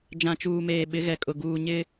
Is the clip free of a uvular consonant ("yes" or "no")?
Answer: yes